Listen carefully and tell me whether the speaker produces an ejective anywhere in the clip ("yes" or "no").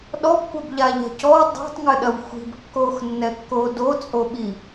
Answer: yes